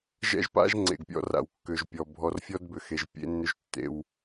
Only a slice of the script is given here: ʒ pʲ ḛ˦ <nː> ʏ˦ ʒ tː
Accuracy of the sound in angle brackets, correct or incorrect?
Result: correct